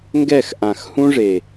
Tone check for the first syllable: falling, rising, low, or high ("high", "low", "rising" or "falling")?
falling